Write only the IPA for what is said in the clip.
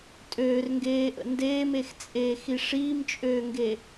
tʼ øː r ŋ ɡ eː ʔ ə̰ n d eː m e x t͡sʼ eː x i ʂ iː m t͡ʃʼ øː ŋ ɡ e

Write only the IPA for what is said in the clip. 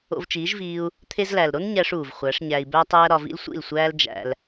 o̰˧ v t͡ʃ iː˨˦ ʒ v iː˧ u̯ | t̪ʰ e˧ z l æ˨ l ɾ o˦ n ɲ æ˧ ʂ uː˨ v χʷ æ˨˦ ʂ ɲ æ˧ i̯ b æ˦ tˤ æː˦ ɾ ɒ˧ v ḭ˦ l sʷ ḭ˦˨ l sʷ æː˦ l d͡ʒ æ̰˧ l

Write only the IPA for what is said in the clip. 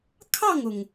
kʰ ɑ˥˨ ŋ ʊ˩ ŋ

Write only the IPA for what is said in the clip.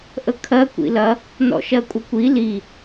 ʔ ə kʰ ɜ kʷ ḭ l ɐ | n ɔ̰ ʃ ɜ kʷʼ ə kʷ i l i

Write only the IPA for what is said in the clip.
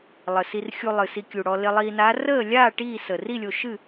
lˠ ə˨˩ s i˧ r xʲ u˧ lˠ ɨ˨˩ s i˧ kʲ u˨˩ ɽ ɔ˧ l ɪ˧ lˠ iː˧ n aː˧˥ r əː˥˨ lʲ aː˥˨ ʈ iː˥˨ s ə˨˩ r i˥˨ lʲ o˧ ʃ ɨ˥˨

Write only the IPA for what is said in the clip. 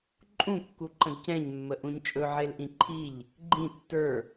ǃʼ ũ kː u ǃ ə̃ d c ɛ̃ ɲ mː ə ʔ ũ ɲ t͡ʃʼ ɵ ʕ e l ʔ ĩ ǃʰ i ʎ | ɡ͡ǃ ĩ tː ə˞

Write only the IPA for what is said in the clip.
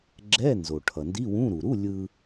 ɡ͡ǁ ɛ˧˥˧ n z o˩ ʈʰ ʌ˩ n d i˧˥˧ w ũ˧˥˧ ɾ u˩ ɾ u˧˥˧ lʲ ɯ˧

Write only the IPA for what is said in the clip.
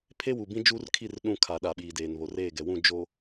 pʰ e˦ w u˨ b ĩ˦ d͡ʒ uː˦ r kʰ i˦˨ r ɗ ũ˦˨ kʰ a˨ ɗ a˨ ɓ iː˨ d eː˨ n β o˨ r eː˦˨ ɡ ɛ˨ w ũ˦˨ d͡ʒ o˨

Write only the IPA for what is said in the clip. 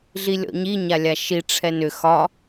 ɮ i lʲ ɔ̰ ɲ i ɲ a lʲ a ʃ i ʈ͡ʂʰ ɛ n ʏ x ɒ

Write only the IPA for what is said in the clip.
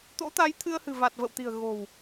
t̪ o̰˧˥ t̪ a˨˦ j t̪ʰ ɨ˧ ə̯ h ɨ̤˨˩ v a˨˩ t̚ v ə̰˧˨ w t̪ i̤˨˩ ə̯ ɣ o̤˨˩ w

